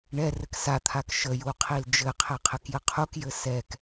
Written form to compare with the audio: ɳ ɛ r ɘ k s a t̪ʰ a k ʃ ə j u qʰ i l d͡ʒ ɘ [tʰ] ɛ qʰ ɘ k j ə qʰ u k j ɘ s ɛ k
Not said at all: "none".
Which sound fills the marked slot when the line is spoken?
qʰ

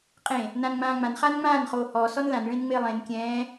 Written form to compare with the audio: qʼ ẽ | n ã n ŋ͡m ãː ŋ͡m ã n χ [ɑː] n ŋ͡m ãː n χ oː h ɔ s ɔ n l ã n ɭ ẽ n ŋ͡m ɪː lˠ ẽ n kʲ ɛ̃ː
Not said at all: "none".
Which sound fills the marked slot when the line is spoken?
aː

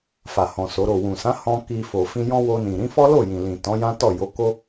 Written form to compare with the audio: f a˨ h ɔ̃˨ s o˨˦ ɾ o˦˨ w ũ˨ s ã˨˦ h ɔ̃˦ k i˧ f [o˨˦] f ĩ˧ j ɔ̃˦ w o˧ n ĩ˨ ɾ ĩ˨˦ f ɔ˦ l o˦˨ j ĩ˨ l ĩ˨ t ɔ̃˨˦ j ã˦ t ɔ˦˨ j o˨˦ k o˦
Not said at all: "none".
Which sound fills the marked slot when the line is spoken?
o˨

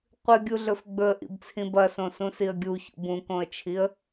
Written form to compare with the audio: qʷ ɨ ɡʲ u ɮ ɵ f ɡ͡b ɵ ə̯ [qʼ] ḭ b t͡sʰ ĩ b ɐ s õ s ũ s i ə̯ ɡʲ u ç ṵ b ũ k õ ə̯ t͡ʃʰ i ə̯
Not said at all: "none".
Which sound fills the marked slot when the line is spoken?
ʔ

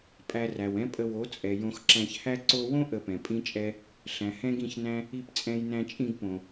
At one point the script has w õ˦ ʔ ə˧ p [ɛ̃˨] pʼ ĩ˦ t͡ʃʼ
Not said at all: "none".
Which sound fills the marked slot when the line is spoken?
ɛ̃˨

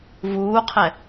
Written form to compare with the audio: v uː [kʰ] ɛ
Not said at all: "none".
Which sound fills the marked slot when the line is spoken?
qʰ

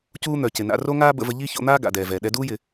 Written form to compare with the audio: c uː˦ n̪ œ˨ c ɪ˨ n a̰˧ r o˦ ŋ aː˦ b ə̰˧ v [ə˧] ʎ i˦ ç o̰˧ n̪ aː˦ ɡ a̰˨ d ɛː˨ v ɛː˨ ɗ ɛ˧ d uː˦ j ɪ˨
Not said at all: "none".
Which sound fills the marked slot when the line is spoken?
ə˧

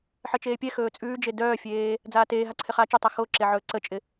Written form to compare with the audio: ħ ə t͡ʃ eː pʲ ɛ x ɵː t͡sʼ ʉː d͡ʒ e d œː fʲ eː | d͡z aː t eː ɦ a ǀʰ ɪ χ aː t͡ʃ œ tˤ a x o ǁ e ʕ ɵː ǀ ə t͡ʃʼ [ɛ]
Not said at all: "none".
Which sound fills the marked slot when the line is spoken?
ɪ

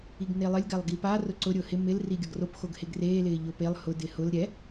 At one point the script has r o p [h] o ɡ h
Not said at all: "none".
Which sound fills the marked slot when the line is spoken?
x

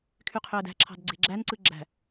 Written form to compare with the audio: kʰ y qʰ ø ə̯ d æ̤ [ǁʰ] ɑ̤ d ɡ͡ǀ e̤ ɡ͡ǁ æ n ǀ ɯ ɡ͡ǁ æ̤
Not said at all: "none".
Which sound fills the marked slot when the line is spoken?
ǁʰ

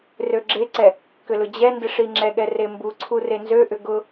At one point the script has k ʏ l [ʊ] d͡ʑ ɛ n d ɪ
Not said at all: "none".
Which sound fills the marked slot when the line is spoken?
ʊ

